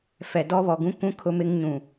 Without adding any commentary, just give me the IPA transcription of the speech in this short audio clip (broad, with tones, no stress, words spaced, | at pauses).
fɛ˨ dɔ˦βɔ˨ɡũ˦kʷũ˦ kʰʊ˦mɪ˦ŋ ɲũ˨